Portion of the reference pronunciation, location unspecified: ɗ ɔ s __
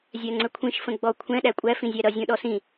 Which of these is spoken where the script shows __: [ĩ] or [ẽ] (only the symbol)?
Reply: ĩ